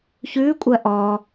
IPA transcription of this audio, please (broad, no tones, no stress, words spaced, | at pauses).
çʉːkʷʼɜ ʔɔ